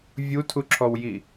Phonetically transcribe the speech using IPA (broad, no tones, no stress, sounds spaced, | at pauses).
vʲ u tʰ u ǁʰ ɔ w j i